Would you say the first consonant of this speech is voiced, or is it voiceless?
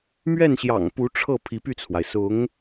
voiced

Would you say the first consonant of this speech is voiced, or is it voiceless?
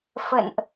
voiceless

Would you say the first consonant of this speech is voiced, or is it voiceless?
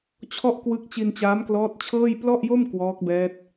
voiceless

